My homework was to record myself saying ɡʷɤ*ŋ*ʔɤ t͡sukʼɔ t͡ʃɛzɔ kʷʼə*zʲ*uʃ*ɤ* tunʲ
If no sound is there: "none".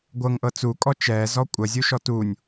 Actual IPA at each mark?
ŋ, zʲ, ɔ

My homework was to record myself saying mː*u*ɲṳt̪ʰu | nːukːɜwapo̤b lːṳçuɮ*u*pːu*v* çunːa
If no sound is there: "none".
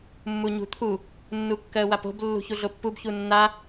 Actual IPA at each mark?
u, o, b

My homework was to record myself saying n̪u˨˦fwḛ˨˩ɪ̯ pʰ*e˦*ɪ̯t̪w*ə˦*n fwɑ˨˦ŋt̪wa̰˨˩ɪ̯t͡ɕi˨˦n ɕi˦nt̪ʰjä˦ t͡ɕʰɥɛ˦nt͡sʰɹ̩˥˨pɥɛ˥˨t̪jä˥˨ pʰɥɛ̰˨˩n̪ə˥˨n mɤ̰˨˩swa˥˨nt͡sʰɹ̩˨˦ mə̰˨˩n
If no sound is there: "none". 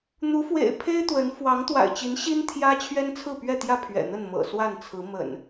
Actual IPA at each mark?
e˦, ə˨˦

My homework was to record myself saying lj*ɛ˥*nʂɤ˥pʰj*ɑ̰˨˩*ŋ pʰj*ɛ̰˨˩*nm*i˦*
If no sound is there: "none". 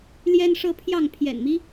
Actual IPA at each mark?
ɛ˥, ɑ˥˩, ɛ̰˨˩, i˦

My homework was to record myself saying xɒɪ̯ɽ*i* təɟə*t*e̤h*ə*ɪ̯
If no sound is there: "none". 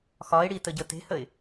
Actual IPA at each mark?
i, t, ə

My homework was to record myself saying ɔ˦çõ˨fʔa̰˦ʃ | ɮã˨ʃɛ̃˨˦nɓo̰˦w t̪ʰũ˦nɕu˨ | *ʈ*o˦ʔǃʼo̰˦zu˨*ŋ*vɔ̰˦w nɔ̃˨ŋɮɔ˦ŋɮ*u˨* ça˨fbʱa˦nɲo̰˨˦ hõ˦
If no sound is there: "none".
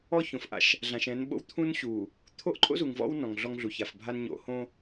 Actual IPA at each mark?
t̪ʰ, ŋ, u˨

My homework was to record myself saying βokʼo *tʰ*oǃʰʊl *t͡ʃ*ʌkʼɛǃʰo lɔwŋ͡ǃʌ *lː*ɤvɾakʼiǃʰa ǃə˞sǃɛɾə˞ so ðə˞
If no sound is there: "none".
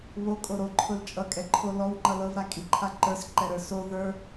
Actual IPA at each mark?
ɾ, t͡ʃʼ, l

